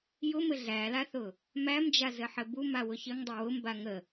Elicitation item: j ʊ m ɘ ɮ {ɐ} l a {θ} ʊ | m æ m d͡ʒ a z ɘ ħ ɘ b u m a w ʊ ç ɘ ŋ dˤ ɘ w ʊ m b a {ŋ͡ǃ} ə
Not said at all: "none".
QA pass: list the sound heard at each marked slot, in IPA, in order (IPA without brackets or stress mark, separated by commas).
æ, θ, ŋ